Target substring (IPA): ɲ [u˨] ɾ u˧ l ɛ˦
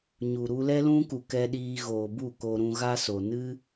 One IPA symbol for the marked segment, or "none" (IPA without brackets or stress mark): u˨